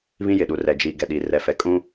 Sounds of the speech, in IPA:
β ĩ˦ j ɪ˨ ɗ u˨ r ɛ˨ d͡ʒ i˨ ɡ ɛ˨ ɗ i˨ r ɛ˨ f ɛ˨ kʼ ũ˦

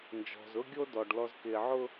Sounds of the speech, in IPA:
n d͡ʒ ɔ̤˨ z ʊ˦ ɡʲ o˦ d ɔ˨ ɖ l ɔ˨ z k ɪː˨ ʕ ʊ˦

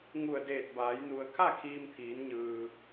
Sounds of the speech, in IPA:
ŋ u˧˩ ə̯ d eː˧˩ t̚ b aː˩˧ j n u˩ ə̯ kʰ a˥˨ kʰ iː˧ m t̪ʰ iː˩˧ n ɲ ɯː˩

